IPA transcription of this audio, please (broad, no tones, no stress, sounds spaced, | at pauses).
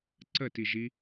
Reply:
ǀ ə t i ʒ i